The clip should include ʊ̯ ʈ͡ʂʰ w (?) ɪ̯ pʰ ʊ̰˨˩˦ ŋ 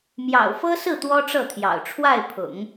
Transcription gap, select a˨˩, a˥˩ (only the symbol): a˥˩